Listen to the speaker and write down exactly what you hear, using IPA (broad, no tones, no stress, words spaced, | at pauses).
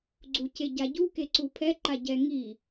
ɡ͡ǀuceɟaɟu keǀupʰɛ ǃaɟɛŋi